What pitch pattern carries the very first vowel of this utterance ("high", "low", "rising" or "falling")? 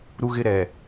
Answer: high